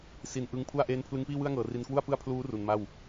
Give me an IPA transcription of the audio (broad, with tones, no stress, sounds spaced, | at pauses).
s i˨˩ n ʔ ɯ˧ ŋ pʰ u˥˩ a̯ ʔ eː˦˥ n pʰ l ɯ˦˥ ŋ p iː˥˩ w ɯ˥˩ a̯ ŋ ɤː˨˩ r i˧ n k w u˥˩ a̯ p ɯ˥˩ a̯ pʰ l uː˦˥ r u˨˩ n m a˥˩ w